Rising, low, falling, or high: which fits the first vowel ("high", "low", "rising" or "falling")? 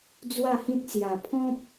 falling